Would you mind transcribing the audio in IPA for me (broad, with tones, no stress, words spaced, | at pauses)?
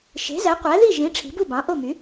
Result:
ʃe̤˩˥zæ˩˥qʷæ˩˥ði˥˩ ʒĩ˩˥ ʈ͡ʂʰi̤˩˥bu˥˩bɑ̃˩˥ ʔo˥˩my˩˥